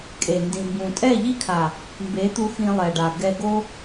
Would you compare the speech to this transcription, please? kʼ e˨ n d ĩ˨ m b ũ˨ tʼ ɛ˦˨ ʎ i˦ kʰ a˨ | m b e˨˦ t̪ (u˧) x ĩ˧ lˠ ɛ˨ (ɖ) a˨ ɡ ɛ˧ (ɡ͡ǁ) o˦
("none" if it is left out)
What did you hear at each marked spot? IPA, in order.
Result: u˧, ɖ, ɡ

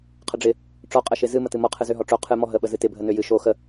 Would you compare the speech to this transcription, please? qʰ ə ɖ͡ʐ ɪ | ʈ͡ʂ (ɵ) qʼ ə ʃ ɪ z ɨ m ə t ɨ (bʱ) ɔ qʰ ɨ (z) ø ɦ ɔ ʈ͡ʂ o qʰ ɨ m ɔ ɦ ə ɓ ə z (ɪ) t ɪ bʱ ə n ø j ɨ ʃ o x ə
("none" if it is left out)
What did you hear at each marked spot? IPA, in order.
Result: ɔ, m, z, ɨ

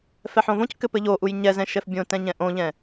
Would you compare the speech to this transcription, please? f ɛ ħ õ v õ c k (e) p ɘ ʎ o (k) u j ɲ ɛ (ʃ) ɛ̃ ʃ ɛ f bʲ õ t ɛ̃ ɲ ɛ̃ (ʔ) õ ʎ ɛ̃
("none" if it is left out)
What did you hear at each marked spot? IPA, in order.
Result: ɘ, ʔ, z, ʔ

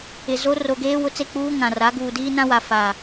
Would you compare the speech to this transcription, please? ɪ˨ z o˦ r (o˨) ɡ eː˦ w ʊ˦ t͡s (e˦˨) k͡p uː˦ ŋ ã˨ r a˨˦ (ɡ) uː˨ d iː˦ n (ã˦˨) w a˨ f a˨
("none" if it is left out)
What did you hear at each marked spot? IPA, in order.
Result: o˨, e˦˨, ɡ, ã˦

